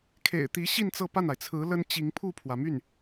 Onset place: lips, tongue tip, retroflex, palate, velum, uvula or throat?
velum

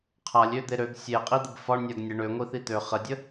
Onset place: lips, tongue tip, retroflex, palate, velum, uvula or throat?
uvula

